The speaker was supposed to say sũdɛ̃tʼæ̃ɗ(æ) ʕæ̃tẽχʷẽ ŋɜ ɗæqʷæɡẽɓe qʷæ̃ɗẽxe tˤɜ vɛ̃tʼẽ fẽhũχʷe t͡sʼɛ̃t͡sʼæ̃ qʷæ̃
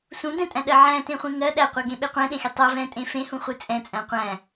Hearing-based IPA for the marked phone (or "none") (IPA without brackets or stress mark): ɜ